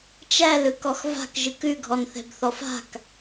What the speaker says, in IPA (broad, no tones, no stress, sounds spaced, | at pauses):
t͡ʃ æ l ɯ k ɔ x v a̤ k ʒ ɯ k ʉ ɡʱ ɔ n θ ɛ̤ b θ ɔ f a̤ k